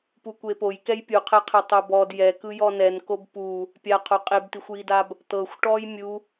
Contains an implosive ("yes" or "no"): no